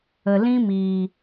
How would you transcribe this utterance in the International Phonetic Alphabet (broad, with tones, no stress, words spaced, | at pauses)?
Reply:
ə˨lĩ˦miː˨